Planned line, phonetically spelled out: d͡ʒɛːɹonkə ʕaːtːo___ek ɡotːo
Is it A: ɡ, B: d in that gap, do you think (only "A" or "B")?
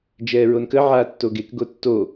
A